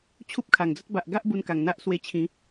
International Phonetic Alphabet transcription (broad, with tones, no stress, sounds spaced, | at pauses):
t͡ɕʰ u˦ p̚ kʰ a˨˩ ŋ d͡z ə˦ t̚ b a˨ ʔ ɡ a˦ ʔ b u˧ n k a˨˩ ŋ n̪ a˦ ʔ s w e˧ t͡ɕʰ ĩ˨˦